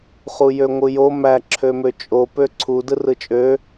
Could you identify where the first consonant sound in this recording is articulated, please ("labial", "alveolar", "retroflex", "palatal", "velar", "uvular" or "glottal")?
uvular